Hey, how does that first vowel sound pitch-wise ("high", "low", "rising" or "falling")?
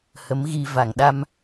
rising